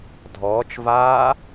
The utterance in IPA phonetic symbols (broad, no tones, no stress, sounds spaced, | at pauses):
dʱ ɔː t͡ʃ v aː